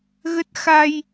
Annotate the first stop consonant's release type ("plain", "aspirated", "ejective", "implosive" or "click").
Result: plain